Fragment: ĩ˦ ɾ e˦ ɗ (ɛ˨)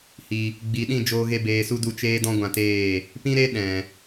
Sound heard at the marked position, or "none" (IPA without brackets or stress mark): ɛ̃˨